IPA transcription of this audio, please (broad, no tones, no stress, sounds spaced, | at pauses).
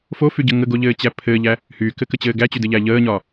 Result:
f o f y ɟ ə ŋ ə ɡ o ʎ ɘː t͡ɕ æ pʰ ɘː ʎ æ | h yː k ɘ k ə t͡ɕ ɘː ɡ æ t͡ɕ y d ɘ ʎ æ ʎ əː ɲ ɒ